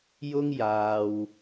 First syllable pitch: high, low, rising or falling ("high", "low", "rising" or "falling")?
high